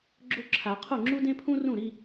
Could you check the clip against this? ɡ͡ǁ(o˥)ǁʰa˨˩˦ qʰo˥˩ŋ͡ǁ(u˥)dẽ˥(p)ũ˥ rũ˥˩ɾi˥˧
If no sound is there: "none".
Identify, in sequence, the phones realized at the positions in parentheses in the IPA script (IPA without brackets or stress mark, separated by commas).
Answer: o˥, u˥, pʰ